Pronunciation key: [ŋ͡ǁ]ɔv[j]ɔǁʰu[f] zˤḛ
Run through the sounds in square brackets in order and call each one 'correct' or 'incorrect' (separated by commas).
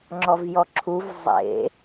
correct, correct, incorrect